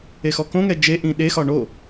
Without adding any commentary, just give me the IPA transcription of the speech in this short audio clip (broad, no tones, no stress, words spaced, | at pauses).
exɔkõŋɛ d͡ʒeʔĩ ɗexɒ ɳo